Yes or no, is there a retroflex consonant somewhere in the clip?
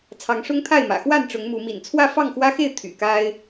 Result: yes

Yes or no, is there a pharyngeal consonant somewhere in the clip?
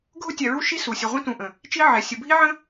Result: yes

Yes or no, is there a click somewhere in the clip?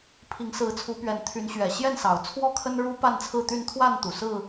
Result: no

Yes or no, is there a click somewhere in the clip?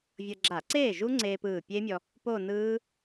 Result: yes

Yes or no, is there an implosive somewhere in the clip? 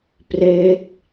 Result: no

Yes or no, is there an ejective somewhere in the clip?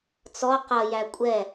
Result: yes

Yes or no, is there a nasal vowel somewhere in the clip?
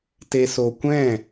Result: yes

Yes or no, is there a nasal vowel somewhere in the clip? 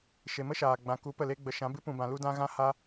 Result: yes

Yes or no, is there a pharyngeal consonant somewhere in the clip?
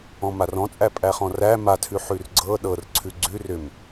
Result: yes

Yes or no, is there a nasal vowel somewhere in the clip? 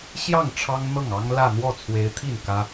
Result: no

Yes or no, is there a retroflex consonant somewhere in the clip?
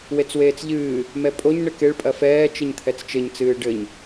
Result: yes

